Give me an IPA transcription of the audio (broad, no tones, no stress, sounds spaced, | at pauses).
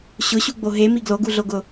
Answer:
ɕ ʊ ɕ u ɡ͡b o ɦ e m i ɡ l o ɡ u ɮ o ɡ ʊ